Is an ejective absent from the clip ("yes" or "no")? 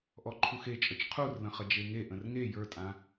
no